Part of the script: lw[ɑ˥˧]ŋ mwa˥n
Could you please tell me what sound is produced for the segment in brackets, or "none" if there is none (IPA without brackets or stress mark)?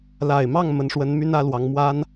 ɑ˧˥